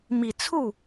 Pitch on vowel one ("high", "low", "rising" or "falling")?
low